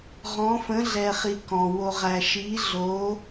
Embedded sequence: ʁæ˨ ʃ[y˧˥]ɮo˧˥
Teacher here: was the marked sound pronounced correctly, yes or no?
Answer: no